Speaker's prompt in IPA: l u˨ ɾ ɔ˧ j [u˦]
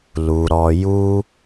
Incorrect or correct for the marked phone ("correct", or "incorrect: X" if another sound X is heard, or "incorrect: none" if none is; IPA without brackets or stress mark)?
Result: correct